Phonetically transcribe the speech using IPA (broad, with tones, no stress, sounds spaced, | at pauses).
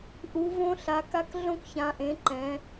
ʔ u˩˧ v õ˦ ɬ a˩˧ k a˦ k ɮ õ˦ k ç ã˩˧ ʔ ẽ˩˧ ǃ ɛ̃˩˧